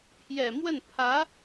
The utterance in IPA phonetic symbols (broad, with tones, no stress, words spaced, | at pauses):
pʰjɛ˨˩mwə˥˩n pʰä˧˥